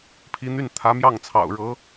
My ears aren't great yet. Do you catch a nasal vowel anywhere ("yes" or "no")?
no